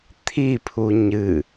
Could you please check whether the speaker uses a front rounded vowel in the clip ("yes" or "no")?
no